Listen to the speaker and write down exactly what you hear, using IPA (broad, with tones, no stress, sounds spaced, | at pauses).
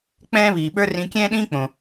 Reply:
k͡p ɛ̃ː˥ β iː˩ ɓ ə˞˥ r ĩ˧ kʲ ɛ̃ː˥ ɗ ĩː˥ k͡p õ˩